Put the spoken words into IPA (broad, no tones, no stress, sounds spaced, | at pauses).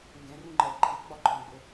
ŋ ɡ ɛ̃ r ũ ŋ͡ǃ ɛ ǃʰ ɪ ɡ͡b ɒ ǃʰ ɔ̃ ɡ͡b ʊ